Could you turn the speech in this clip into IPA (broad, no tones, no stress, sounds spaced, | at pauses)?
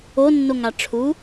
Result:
o nː o ŋ a ʈ͡ʂʰ u